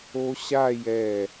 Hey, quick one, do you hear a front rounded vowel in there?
no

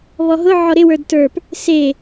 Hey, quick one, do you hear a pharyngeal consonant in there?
yes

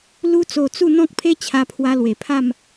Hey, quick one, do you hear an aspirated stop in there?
yes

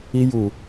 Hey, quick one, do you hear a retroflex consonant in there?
no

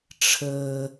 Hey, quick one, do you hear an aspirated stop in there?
yes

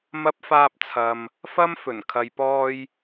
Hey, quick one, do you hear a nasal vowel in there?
no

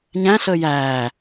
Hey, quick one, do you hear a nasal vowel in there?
yes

